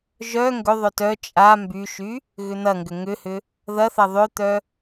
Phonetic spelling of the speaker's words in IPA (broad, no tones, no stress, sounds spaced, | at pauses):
ʒ œ ŋ ɡ ʏ ðˤ œ t œ t͡ʃʼ a m b y ʃ y | ɣ ʏ n̪ ɐ ŋ ɡ ʏ ŋ ʏ h ʏ | ð ɐ θ ɐ ðˤ ʏ t̪ œ